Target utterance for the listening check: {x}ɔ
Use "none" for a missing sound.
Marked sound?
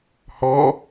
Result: h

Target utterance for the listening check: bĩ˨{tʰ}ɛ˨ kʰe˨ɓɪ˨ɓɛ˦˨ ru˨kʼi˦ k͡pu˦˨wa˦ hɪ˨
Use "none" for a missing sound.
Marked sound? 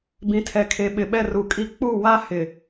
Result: tʰ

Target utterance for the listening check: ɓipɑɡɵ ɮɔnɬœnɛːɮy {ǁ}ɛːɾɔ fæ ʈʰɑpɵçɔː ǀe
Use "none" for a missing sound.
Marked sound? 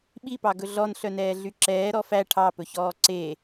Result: ǁ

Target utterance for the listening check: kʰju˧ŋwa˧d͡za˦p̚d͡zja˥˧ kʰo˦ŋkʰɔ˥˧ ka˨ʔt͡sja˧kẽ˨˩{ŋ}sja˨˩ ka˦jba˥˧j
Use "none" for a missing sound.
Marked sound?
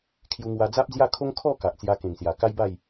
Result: ŋ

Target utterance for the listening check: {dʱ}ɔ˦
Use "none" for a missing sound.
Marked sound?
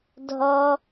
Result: dʱ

